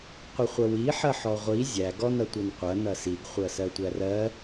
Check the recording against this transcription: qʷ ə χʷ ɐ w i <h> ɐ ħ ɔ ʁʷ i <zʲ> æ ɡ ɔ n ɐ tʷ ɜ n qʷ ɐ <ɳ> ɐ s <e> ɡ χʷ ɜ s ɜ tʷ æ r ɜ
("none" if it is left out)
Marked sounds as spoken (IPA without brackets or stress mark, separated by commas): ħ, zʲ, n, i